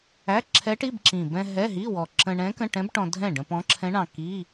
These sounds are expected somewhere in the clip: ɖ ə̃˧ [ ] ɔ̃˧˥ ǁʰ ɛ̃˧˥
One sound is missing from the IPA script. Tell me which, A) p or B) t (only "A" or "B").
A